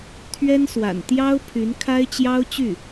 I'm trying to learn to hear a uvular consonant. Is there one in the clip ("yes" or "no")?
no